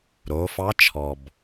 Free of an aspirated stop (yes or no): no